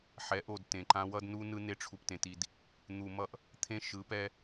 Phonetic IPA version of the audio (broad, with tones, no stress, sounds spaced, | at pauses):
ħ ɛ˨˦ ʔ o˨ d t ẽ˨ ǃ ã˦ w ʌ˦ d n u˦ n ɯ˦ n e˦ ʈ͡ʂʰ u˨ p t ẽ˨ t i˨ d | n̪ u˨ m ʌ˦ ʔ | t̪ʰ ẽ˦ ʃ ɯ˨˦ p ɛ˦